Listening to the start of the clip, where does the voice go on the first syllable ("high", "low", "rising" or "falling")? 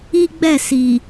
high